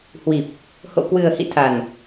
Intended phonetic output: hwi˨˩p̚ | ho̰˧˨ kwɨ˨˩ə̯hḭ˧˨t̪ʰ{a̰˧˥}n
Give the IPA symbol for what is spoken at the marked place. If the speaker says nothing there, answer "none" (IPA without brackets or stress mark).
a˨˩